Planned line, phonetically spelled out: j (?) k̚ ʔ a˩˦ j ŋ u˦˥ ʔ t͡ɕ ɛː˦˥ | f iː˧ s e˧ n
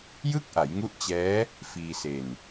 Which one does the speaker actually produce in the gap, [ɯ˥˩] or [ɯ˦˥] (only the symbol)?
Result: ɯ˥˩